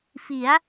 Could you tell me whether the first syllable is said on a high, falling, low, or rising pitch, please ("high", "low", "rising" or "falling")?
rising